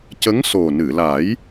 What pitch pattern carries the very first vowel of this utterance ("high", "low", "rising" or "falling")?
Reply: rising